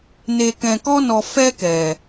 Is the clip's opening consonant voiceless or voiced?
voiced